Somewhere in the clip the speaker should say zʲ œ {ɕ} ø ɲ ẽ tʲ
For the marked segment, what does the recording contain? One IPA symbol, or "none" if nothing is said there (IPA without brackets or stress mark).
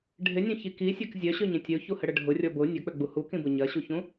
ɕ